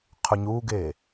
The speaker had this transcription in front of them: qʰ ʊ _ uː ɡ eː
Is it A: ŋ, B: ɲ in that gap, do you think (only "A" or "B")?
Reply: B